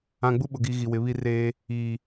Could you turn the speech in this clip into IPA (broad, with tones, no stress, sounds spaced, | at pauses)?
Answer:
ã˨ ɡ͡b u˦ ɓ ʊ˨ ɡ i˨ ɣ i˨ w ɪ˨˦ β i˦ r eː˦ | iː˨